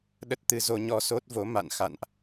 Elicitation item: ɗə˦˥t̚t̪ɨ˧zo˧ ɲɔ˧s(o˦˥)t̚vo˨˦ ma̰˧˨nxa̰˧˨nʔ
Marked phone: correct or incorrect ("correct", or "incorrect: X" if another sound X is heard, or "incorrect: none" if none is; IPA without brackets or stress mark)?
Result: correct